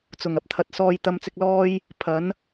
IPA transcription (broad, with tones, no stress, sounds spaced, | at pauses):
t͡s ʊ˨˩ ŋ ɐ˧ p̚ t̪ʰ ɐ˨ t̚ s ɔː˧ j t̪ ɐ˧ m t͡s ɪ˧ k̚ l ɔː˥ j | pʰ ɐ˨˥ n